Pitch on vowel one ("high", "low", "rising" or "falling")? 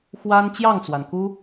high